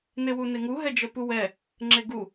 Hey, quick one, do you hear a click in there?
yes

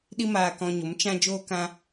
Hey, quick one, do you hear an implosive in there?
yes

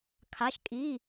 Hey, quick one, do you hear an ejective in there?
yes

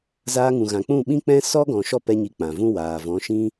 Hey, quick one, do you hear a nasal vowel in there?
yes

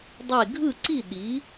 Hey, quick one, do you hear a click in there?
yes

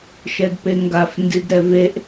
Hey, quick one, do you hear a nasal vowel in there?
no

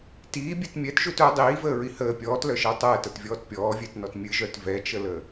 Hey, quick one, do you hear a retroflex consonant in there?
no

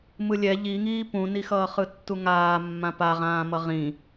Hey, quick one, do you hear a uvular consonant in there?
yes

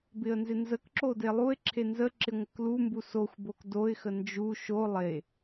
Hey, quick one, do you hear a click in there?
yes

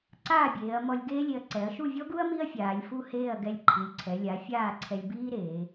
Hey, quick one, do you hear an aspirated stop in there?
yes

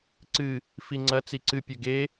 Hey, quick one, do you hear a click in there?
yes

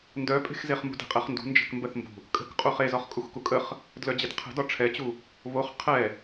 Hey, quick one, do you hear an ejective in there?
yes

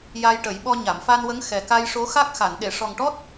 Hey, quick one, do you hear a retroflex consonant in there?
yes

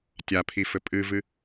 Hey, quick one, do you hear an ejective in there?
yes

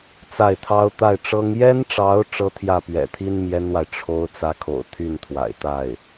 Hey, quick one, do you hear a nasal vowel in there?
no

